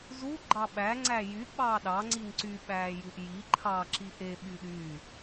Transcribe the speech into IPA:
z u ɡ͡ǃ ɑ ɓ æ ŋ͡ǀ æ j y ɓ ɑː ɗ ɑ ŋ͡ǀ i ŋ ǀ y ɓ æː j u ʔ j i ǃʰ ɑ ǁ i ʔ e ɓ y ɗ yː

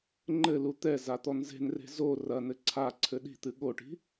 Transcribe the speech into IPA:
ŋ͡ǃ ɘ l u t̪ ɛ z a t̪ ɔ n z e̤ n r e̤ z o r ɐ n ɘ ǀʰ a ǀʰ ɘ ɗ i̤ t̪ ɨ ɠ o ʈ i̤

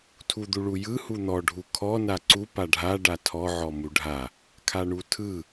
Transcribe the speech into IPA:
tʰ u d̪ u ɭ u j ɯ h u n̪ ɔ ɖʱ u kʰ ɔ n a ǀ u p a ɖʱ a ɖ a tʰ ɔ ʕ ɔ m u ɖʱ a | kʰ a ɳ u tʰ ɯ

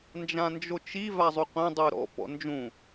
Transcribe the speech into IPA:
n d͡ʒ ã n d͡ʒ o t͡ʃ i v a zˤ u qʷ ẽ dˤ u ɾ ɔ̰ p ɔ̰ n d͡ʒ ũ

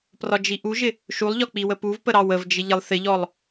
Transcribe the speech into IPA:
p r ɒ d͡ʒ i ʔ u ʒ ɪ | ʃ u lˠ ʎ ɒ k͡p i w ə p u v p ə ɾ ɑ w ə v d͡ʒ ɪ ʎ ɪ lˠ θ ɪ ʎ ɔ lˠ

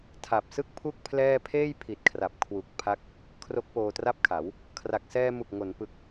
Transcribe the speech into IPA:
tʰ a˨˩ p̚ s ɯ˥˩ k̚ pʰ u˥˩ k̚ pʰ l ɛː˥˩ pʰ eː˥˩ j pʰ i˨˩ t̚ kʰ r a˨˩ p̚ kʰ w u˨˩ k̚ pʰ a˦˥ k̚ | kʰ r o˦˥ k̚ p oː˧ t r a˥˩ p̚ kʰ a˩˦ w | kʰ r a˨˩ k̚ s ɛː˧ m u˨˩ k̚ ŋ o˩˦ n p ɯ˦˥ k̚

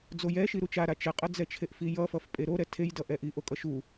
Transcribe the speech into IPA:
d͡z o j ɛ ʃ i ɾ u t͡ʃ a ɾ a t͡ʃ ɛ qʼ ʌ d͡z ɛ t͡ʃʰ e ʔ f i j ʌ f ʌ f pʼ e ɾ o ɾ ɛ tʰ e j d ʌ ʔ ɛ ʔ i ʔ o kʼ ʌ ʃ u

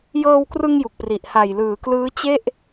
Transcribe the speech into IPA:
j ɤː˧ w k r ɯ˧ ŋ j u˨˩ k̚ p r i˨˩ ʔ h a˨˩ j l ɯː˩˦ k l ɯː˦˥ t͡ɕ e˥˩ ʔ

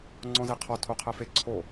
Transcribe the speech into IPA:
ŋ͡ǀ ɔ̃ z e qʰ ɔ tʰ o qʰ ɛ f e ǀʰ o

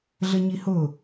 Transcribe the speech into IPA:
ɮ ə ɲ i h ʊ

